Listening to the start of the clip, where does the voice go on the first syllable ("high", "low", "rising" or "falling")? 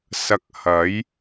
rising